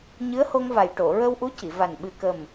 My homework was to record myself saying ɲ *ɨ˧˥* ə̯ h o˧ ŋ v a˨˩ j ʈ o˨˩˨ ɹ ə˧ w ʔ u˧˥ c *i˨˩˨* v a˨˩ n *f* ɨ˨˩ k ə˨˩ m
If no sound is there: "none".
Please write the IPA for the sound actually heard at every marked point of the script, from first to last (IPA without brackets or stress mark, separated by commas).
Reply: ɨ˧˥, i˨˩˨, ɓ